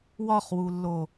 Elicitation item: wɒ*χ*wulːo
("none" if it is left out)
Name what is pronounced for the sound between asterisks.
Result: χ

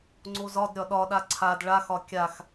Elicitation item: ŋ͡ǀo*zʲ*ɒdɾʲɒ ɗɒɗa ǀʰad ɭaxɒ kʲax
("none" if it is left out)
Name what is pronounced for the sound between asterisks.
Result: z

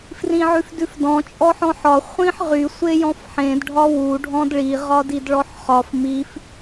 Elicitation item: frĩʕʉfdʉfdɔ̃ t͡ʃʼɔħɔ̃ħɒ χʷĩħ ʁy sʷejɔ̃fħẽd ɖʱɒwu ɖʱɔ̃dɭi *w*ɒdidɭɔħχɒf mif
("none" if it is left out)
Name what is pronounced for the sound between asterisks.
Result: ʁ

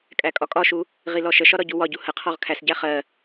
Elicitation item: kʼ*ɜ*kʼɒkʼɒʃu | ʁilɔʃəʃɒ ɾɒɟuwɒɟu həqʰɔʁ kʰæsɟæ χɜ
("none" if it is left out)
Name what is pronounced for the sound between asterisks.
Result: æ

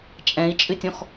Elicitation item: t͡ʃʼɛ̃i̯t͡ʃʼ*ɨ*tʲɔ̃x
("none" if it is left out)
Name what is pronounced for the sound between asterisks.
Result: ɨ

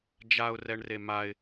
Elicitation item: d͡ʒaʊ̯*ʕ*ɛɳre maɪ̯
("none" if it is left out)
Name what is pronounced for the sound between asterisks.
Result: r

